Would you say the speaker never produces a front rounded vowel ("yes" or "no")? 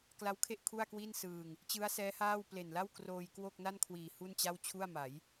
yes